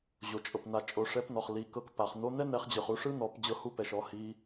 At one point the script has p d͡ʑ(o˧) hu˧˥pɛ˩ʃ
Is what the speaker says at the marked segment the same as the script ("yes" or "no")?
no